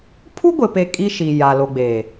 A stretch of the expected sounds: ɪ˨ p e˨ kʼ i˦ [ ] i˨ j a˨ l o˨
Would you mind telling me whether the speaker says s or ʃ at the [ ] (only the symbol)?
ʃ